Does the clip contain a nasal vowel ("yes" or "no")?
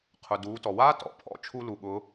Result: no